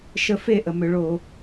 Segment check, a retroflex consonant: present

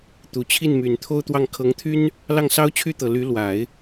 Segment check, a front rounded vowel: present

